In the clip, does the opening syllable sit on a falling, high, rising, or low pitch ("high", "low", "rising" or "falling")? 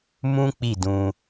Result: high